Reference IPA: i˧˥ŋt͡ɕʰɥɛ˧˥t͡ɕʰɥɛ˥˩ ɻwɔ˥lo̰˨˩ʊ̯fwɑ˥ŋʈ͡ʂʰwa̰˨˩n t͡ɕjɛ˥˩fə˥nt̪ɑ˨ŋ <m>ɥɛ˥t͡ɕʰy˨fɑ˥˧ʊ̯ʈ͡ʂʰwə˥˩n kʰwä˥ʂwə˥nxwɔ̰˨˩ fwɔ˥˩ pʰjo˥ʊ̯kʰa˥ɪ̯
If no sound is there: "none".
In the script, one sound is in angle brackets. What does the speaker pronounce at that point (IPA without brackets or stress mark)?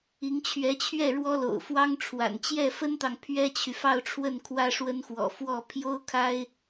pʰ